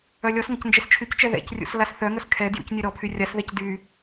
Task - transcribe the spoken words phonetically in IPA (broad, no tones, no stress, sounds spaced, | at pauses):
œ lʲ ɔ s ŋ ɐ c n d͡ʒ ɛ s t͡ʃʰ y c t͡ʃ ɛ ð ɛ̰ c rʲ ṵ s l a s θ œ ŋ œ s kʰ ɛ d j ṵ c nʲ ø ɾ ɔ pʰ y rʲ a s ð ɛ c d y